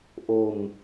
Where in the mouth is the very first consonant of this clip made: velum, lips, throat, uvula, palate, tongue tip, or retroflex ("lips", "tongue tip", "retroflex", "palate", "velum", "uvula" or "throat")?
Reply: throat